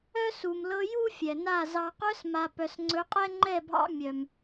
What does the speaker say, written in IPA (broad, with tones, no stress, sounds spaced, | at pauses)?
œ˦ s u˨ m l ɤ˧ j u˦ fʲ ɛ˨ n a˦˨ z ɑ˨ q œ˧ s m a˨ p œ˨ s ŋ͡ǀ ɵ˨˦ qʼ ɛ˦ ŋ͡ǃ ɛ˦˨ bʱ ɑ̰˧ mʲ œ˨ m